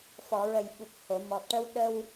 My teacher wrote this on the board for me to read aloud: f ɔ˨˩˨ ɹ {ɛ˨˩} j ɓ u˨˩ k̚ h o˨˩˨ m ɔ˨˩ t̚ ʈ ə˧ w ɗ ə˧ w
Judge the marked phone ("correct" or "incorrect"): incorrect